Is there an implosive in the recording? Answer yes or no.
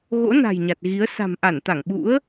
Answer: yes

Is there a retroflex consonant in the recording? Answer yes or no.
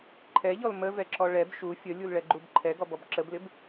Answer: yes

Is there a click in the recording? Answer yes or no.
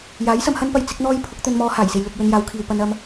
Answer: no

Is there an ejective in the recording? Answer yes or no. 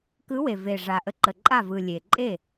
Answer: yes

